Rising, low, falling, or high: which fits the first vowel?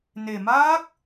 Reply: low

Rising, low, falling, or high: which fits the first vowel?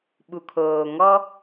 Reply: low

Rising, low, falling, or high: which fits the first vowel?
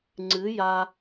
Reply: rising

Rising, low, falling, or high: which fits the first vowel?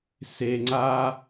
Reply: low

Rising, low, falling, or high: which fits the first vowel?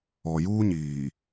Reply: low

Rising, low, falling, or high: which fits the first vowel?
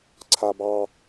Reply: high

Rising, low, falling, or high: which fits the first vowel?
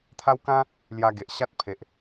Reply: high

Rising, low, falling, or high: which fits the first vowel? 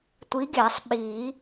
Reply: rising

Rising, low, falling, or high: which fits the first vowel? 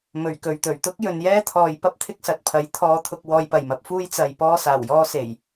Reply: low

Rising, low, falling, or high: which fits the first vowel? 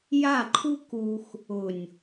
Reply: falling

